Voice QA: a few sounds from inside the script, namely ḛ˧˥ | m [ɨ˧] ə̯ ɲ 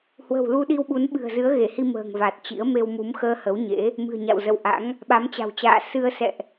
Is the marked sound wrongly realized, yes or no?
yes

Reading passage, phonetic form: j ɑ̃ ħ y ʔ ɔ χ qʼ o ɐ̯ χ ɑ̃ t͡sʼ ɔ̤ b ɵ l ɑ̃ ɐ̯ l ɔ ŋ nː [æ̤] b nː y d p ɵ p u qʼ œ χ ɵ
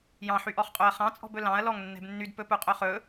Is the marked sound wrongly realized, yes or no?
yes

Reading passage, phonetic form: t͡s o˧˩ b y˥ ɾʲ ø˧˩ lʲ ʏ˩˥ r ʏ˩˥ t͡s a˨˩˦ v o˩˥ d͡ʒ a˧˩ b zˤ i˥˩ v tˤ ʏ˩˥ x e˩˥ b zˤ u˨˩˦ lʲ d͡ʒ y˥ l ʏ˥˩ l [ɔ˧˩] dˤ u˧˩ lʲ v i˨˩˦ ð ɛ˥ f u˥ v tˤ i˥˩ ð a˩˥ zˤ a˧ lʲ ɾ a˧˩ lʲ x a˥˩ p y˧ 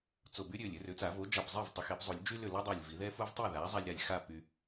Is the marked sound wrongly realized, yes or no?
yes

